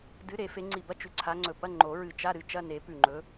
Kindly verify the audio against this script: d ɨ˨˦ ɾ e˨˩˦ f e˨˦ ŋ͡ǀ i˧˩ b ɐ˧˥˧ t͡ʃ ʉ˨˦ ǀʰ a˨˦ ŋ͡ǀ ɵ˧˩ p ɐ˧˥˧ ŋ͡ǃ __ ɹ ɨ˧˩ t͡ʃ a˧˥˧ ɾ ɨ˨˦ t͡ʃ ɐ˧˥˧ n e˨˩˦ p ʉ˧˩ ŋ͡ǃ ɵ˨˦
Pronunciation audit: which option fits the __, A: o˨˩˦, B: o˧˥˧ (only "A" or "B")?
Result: A